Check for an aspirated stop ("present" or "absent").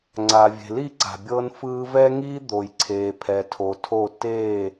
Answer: present